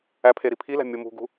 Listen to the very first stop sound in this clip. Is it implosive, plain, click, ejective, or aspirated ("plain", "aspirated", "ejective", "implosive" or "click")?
aspirated